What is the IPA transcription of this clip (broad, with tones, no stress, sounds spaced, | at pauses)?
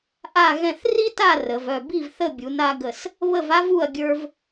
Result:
ʔ a˥˨ ɣ ɛ̃˥˨ θ r i˥ t a˥˨ r ə˨˦ v œ˥˨ b i˥˨ v θ ə˥˨ bʲ u˨˦ n a˥ ɡ ə˥˨ s | β ə˥˨ v a˥ v u˥˨ ɐ̯ ɡʲ ə˞˥ v